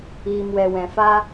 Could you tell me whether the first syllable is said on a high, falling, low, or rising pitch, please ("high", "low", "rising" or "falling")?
low